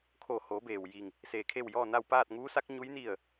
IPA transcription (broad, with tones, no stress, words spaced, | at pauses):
kʰo˧˩ho˩˧beː˩w ji˧˩ŋ | seː˧˩kʰe˥˨w jɔː˥˨na˥˨w paː˥˨t̚ŋuː˧˥sa˧˥k̚ɲu˧˥j ni˥˨ə̯